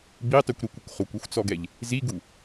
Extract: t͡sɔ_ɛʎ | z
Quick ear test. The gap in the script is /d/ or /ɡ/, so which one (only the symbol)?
ɡ